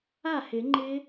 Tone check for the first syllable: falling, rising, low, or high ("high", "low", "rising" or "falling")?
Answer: falling